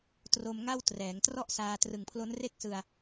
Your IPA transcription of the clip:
tro˧m ŋa˥˩wtrɛː˩˦ŋ trɔ˦˥ʔ saː˧ trɯ˨˩ŋpʰlo˦˥n re˥˩k̚sɯ˧a̯

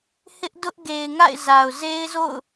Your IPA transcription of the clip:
hɪ˦ʔdʊ˦ʔɡe˨ɪ̯ ŋa̰˦˨ɪ̯za˨ʊ̯ze˦ɪ̯zo̰˦˨ʊ̯

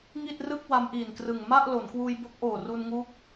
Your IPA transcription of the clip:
ŋi˥˩t̚rɯ˥˩k̚ wa˦˥mʔiː˨˩nkrɯ˨˩ŋ ma˥˩ʔ lo˩˦nkwuː˧jbo˦˥k̚ʔoː˨˩ ru˧nŋu˦˥k̚

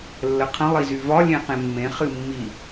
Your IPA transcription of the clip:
lːəqʰə̃ lˠizyvɒ lʲẽqẽmːẽ χɨmːi

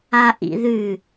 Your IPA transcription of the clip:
aʔḭðʉ

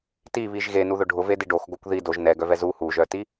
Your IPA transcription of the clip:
tiβiʒ ɣenuðʊ ɖʱʊvedi ɖoxɡokʷ ði doʒ nɛɡœvɛ zu huʒœti

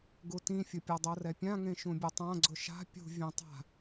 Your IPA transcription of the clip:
ɡutĩfʲʊ pʲodˤorɛpʲã ŋẽʃũbʲʊtˤã ɡ͡ǀʊʃa̤ pʲṳ vʲẽtˤa̤

